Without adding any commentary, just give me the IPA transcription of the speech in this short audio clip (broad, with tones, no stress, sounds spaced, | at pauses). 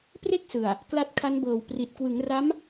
p r e˥˩ k̚ s ɯ˨˩ a̯ | k l a˦˥ t̚ kʰ a˦˥ n b ɤː˨˩ w p r i˨˩ t̚ k w ɯ˩˦ ŋ r a˦˥ m